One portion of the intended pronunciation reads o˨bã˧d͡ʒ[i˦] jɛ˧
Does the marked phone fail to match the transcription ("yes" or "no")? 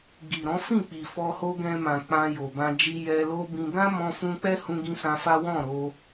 no